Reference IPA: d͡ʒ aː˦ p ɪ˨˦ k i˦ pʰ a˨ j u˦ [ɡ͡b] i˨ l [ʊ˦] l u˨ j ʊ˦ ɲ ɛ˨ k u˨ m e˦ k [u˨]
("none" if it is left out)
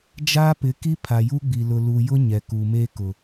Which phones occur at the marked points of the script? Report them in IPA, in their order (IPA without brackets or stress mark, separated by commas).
ɡ͡b, ʊ˨, ʊ˨